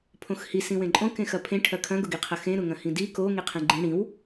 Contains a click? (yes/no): yes